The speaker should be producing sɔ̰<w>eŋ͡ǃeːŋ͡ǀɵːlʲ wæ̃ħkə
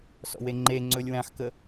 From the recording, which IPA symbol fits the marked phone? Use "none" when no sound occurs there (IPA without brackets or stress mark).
w